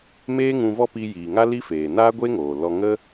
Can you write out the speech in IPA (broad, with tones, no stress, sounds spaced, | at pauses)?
m eː˦ ŋ ũ˧ v ɔ˦ p i˧ j iː˨ ŋ a˦ l i˦ f eː˨ n aː˦ ɡʷ e˦ ŋ oː˨ l ɔ˧ ŋ ə˦